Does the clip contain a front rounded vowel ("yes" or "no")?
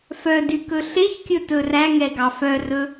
yes